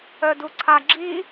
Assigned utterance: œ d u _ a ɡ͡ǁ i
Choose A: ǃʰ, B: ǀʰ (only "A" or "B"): B